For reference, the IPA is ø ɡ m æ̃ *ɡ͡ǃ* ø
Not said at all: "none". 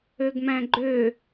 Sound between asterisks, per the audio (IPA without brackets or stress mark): ɡ͡ǃ